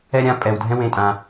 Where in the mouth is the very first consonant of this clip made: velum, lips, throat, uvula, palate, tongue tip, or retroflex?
tongue tip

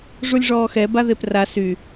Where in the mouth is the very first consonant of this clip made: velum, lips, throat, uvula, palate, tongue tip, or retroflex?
retroflex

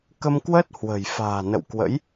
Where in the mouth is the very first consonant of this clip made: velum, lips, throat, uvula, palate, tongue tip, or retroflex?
velum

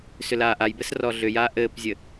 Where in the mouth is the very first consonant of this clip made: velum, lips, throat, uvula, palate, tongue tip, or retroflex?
tongue tip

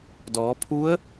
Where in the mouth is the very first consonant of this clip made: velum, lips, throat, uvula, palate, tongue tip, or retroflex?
tongue tip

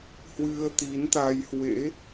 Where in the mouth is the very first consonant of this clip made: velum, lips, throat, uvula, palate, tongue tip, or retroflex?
throat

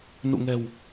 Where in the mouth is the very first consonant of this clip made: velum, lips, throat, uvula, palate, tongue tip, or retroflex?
tongue tip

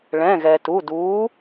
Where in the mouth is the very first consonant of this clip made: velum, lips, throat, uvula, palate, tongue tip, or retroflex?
retroflex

